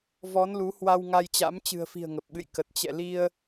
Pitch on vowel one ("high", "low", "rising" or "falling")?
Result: rising